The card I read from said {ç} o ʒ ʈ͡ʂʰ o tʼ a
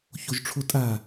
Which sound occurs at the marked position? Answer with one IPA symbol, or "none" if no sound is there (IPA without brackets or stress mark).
ç